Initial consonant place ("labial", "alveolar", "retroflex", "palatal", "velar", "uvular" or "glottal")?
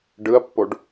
retroflex